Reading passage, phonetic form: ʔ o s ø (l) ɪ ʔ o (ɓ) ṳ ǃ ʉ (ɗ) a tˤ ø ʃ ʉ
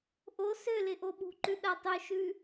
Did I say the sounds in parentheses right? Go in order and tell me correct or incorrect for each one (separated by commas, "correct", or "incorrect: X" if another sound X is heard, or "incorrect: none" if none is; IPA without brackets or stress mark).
correct, correct, correct